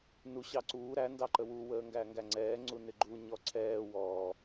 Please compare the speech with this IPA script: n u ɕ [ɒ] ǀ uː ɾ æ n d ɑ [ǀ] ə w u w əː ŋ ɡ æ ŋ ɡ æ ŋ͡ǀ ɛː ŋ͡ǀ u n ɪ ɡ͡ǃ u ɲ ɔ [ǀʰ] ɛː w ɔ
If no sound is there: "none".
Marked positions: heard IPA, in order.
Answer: ɑ, ǃ, ǀʰ

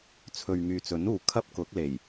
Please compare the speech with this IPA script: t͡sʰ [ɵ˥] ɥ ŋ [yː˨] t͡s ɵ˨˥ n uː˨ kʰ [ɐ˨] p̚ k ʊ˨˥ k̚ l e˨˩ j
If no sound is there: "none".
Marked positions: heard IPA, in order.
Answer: ɵ˨, yː˨, ɐ˥

